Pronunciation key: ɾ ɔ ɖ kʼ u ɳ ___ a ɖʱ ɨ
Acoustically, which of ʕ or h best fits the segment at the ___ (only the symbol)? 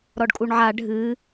ʕ